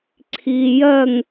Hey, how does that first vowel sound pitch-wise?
low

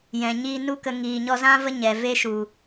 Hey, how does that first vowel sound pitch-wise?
low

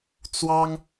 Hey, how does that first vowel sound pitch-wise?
high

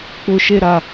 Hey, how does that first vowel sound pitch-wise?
low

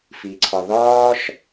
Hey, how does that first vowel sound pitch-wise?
low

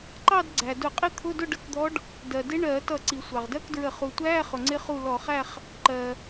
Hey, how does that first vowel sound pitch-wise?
falling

